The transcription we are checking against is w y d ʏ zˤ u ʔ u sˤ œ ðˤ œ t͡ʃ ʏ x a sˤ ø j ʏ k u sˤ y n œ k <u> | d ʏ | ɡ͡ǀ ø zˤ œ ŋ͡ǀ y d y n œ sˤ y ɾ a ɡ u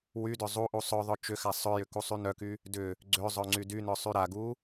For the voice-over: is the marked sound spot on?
no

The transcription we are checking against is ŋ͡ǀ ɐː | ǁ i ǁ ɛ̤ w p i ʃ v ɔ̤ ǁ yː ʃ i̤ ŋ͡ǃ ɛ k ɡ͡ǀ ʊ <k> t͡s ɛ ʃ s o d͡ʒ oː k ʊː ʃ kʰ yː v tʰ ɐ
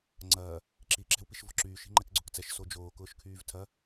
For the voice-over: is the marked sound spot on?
yes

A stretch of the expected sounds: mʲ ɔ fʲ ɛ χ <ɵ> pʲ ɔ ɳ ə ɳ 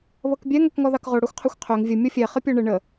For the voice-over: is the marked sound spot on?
no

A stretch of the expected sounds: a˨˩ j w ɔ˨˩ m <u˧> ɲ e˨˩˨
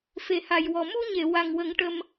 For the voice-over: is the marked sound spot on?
yes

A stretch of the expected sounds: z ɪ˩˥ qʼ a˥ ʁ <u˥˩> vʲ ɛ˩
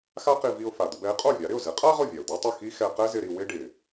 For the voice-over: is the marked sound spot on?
no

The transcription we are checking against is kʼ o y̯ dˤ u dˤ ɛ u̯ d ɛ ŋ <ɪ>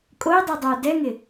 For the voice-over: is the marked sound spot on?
yes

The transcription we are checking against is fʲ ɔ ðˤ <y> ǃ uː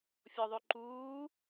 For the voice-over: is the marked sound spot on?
yes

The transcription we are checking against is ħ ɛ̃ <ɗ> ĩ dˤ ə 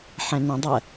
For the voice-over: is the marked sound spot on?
no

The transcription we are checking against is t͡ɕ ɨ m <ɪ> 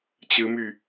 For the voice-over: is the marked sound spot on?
no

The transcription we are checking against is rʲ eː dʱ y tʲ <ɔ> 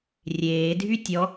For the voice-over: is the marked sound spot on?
yes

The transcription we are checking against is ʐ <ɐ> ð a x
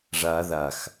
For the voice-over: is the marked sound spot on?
no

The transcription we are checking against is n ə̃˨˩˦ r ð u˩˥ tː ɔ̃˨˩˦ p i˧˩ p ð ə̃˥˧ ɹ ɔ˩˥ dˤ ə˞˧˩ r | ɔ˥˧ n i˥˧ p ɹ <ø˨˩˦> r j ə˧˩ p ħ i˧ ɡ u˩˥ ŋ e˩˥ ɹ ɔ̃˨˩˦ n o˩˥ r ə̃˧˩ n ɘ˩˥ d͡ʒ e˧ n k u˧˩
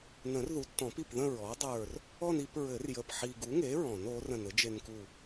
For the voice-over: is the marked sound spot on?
no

